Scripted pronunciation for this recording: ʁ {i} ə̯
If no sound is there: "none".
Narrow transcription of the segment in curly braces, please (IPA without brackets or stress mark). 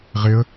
ɪ